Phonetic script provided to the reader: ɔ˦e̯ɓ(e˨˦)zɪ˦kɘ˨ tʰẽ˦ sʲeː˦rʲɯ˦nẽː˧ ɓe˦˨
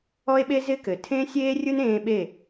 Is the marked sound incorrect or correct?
incorrect